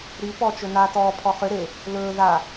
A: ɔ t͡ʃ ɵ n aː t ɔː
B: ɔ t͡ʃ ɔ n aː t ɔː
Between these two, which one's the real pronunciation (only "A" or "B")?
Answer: A